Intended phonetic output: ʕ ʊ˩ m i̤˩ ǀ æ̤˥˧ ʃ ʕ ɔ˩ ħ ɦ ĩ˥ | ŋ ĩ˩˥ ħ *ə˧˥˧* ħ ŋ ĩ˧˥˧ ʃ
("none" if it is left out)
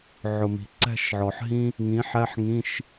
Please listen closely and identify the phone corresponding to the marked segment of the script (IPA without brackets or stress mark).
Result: æ˧˥˧